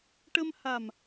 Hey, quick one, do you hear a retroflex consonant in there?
yes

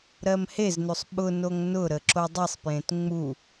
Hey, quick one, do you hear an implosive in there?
yes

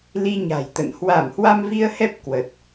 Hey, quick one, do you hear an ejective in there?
no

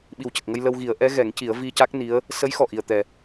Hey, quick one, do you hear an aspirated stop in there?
no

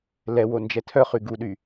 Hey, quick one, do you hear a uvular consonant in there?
yes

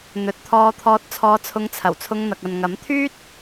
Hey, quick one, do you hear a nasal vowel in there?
no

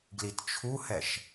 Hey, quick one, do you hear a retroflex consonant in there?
no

